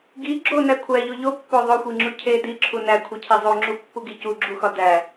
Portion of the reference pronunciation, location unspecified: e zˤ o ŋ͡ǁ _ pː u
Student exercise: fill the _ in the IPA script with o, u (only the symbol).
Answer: u